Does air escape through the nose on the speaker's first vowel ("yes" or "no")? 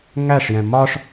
no